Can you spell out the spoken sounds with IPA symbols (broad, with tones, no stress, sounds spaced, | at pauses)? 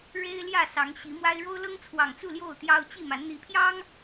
ɻ e˦ ɪ̯ l j ä˥˨ s ɑ˨˦ ŋ ɕ i˨˦ m w a˦ ɪ̯ ɻ o˦ ʊ̯ l ɤ˦ ŋ t͡sʰ w ɑ˨˩ ŋ t͡s u˥˨ l j o˥˨ ʊ̯ t̪ j ɑ˦ ʊ̯ t͡ɕ i˥˨ m a˨˦ n n̪ i˨˦ pʰ j ɑ˦ ŋ